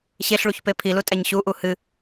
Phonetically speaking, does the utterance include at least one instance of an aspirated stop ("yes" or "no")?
yes